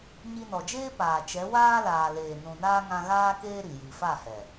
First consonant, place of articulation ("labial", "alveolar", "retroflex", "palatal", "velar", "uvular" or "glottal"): palatal